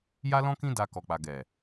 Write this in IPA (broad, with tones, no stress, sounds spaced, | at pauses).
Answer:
j a˦ l ɔ̃˦ k ĩ˦ d a˧ k ɔ˨ k͡p a˨ ɡ ɛ˨